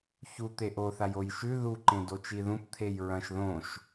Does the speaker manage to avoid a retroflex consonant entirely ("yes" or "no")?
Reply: yes